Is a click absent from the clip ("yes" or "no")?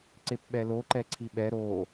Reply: no